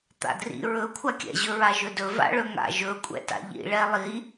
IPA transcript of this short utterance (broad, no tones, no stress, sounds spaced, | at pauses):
t̪ a̰ d r ḭ ɹ ɵ kʷʰ a kʲ ɛ̰ ʑ ɵ ɹ a ʒ ɵ d ɵ v a̰ ɭ ɵ ŋ a̰ ʒ ɵ kʷʼ ɛ̰ t a̰ ʎ ḭ ɭ ɛ lˠ i